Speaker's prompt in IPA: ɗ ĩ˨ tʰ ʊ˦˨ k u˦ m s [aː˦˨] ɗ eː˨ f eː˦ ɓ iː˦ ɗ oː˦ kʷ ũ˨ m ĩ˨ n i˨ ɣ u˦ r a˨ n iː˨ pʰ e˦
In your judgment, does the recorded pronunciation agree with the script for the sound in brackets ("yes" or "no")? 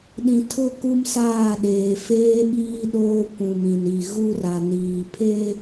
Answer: yes